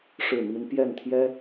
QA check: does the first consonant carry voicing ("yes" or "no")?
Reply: no